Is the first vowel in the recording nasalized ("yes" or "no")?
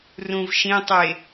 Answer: yes